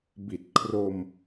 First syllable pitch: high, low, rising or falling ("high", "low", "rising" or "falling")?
low